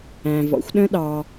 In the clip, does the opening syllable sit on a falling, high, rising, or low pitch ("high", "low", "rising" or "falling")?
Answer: low